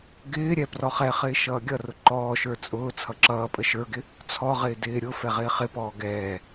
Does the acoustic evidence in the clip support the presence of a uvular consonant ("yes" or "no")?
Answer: yes